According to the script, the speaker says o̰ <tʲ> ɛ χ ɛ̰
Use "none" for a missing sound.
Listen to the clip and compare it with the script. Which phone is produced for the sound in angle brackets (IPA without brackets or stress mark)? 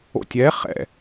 tʲ